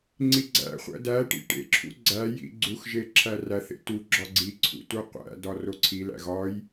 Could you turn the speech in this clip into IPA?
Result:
ŋ͡ǀ i ɡ͡ǀ æ̰ χʷ æ̰ d æ ʈ ḭ ʈ ḛ ǁʰ ṵ ɡ͡ǀ æ j ḭ ɡ͡ǀ u x ʒ e ǁʰ æ r æ θ ḛ t u ɡ͡ǁ ɒ ɡ͡ǀ i ǀʰ ṵ t u qʷ æ̰ d ɒ r o ǀʰ i l æ̰ ɣ ɒ j

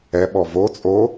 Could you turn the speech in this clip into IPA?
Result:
ɛ ɓ ɔ v o t͡sʼ o

